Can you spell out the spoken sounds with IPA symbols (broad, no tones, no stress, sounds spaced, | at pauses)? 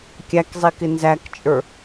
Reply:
kʲ æ k zˤ i k ɪ n z æ k t͡ʃʼ ə˞